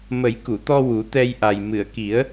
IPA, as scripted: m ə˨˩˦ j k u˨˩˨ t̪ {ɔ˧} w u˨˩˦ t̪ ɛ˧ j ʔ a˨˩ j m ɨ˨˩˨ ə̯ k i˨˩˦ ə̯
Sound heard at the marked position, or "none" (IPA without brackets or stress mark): ɔ˧